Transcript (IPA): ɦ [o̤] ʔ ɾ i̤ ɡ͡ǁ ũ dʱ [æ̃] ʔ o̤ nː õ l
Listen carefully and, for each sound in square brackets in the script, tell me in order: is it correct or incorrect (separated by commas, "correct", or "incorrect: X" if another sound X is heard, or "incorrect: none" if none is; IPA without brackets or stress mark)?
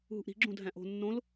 incorrect: ṳ, correct